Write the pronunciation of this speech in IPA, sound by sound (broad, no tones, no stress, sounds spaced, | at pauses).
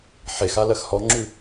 ħ e x a l ɜ x h ɔ ŋ͡ǁ ʉ